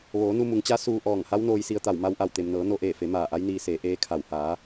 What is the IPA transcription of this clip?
ʋoː˩˧nu˧mu˩˧ŋt͡ɕa˧˥ suː˧ʔɔː˧˩ŋ ha˧˥wnoː˧jsi˧ə̯t̪a˧˩w ma˧wʔa˧˩wt̪e˩mnɤː˩˧ no˧ʔeː˧˩fe˩˧ maː˧˩ʔa˧˥jniː˧seː˩˧ ʔeː˧˥kʰa˧˩w haː˩˧

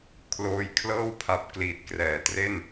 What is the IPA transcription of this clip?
kʰloː˧jkʰlɤː˥˩wpʰa˨˩p̚ kliː˨˩t̚krɛː˨˩ tre˥˩n

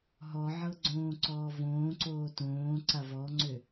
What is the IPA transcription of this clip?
ɦɔʕɤ ɡ͡ǀõːǀɔːvõːǀoː tõːǀa vɔŋ͡ǀø

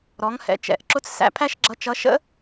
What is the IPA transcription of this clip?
ɾɔ˩˧ŋhɛ̰˩˧t͡ʃɛ̰˩˧ʔǁʊ˧˥t͡s sæ̰˧˥pʰæ˥ʃɡ͡ǁʌ˧˥t͡ʃʌ˧˥ ʃə̰˥

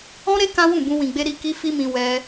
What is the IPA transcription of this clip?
ɔ̃˦ɾe˦ kã˦wũ˦˨bũ˧ wĩ˨ɡ͡be˧ ɾi˧ ki˧ fi˦mĩ˧ wɛ˧

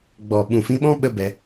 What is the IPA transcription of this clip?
ɡ͡bɔ˨ɓũ˨ fĩ˧ɓɔ̃˦ ɓə˧ bɛ˧

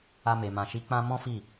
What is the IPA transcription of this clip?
a˧me˨mã˨ ʃi˨˦k͡pã˧ mɔ̃˦fi˦˨

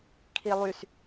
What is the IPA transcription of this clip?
kʰilˠys

